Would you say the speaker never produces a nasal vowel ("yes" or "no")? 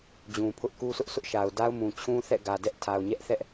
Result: no